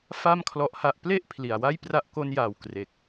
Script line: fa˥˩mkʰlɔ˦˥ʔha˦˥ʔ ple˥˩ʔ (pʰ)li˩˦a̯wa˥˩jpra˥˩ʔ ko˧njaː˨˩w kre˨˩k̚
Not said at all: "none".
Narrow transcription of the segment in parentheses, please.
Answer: pʰ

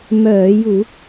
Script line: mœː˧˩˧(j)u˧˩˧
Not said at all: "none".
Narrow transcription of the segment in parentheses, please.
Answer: j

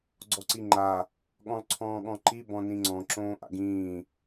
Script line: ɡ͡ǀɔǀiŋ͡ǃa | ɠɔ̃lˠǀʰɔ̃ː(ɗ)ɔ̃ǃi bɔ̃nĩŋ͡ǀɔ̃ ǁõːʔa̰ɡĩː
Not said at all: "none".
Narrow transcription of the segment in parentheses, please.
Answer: ɠ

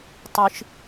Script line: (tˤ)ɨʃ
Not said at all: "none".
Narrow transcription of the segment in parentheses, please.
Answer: tˤ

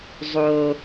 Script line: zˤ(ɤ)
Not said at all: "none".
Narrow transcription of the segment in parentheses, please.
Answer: o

